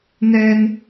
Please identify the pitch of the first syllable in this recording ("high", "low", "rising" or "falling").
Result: high